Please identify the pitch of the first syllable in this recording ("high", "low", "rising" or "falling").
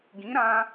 rising